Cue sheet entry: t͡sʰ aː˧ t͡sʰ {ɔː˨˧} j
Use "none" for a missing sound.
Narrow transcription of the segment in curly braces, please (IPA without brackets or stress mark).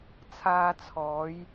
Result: ɔː˨˧